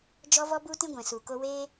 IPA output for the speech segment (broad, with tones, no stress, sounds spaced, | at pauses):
d͡ʒ ɔ˦ v ɔ˦ b u˦ t ĩ˦ ɡʷ ɛ̃˧ s u˧ k o˦ w eː˦